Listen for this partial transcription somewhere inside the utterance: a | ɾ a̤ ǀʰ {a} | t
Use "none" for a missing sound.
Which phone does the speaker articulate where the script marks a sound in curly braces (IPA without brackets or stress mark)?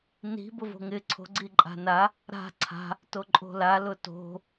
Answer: a̤